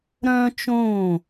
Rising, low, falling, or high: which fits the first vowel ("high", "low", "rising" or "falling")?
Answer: high